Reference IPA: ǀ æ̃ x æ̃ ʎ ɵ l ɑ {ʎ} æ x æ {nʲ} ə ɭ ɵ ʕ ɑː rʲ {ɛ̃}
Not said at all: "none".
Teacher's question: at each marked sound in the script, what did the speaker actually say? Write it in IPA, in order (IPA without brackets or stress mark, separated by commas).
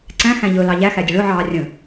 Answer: ʎ, dʲ, ə̃